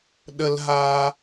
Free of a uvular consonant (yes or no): yes